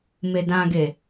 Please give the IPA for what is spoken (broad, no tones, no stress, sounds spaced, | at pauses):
m e d ã ɡ e